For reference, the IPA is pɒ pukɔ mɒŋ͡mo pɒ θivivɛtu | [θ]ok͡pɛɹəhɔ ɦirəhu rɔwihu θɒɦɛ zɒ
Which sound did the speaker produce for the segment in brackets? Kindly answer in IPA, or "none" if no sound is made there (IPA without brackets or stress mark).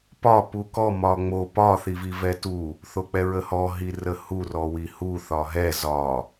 θ